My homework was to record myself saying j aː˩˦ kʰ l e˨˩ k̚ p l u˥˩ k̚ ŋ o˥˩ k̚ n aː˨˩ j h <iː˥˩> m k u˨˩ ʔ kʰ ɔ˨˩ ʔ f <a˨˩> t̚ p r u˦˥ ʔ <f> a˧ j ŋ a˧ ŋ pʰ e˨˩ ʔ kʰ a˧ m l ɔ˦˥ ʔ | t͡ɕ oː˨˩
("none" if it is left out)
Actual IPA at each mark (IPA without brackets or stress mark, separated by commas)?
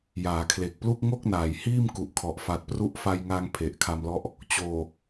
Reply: iː˥˩, a˨˩, f